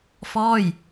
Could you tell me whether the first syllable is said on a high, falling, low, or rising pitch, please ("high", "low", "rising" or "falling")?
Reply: falling